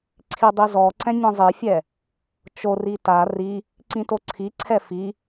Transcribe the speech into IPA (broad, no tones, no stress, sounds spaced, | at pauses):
ǀʰ i dˤ i z ɔ ǀ ɛ̃ nʲ ɛ̃ zˤ i fʲ ɛ | t͡ʃ o r i t a r i | ǀ ĩ t o ǀʰ i ǀʰ ɛ f i